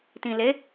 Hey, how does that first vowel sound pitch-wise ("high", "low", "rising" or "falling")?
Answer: low